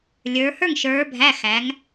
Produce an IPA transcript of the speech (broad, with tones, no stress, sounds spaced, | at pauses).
lʲ ə˞˩˧ h ə˞˥˩ ŋ ʃ ə˞˩˧ bʱ æ˩˧˩ x æ˩˧ ŋ